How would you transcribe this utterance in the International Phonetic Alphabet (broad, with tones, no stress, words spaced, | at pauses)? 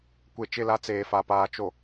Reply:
kʷe˨t͡ʃɪ˦˨la˦ t͡seː˨fa˨paː˨ t͡ʃo˨